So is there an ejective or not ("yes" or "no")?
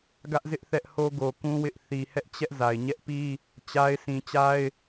no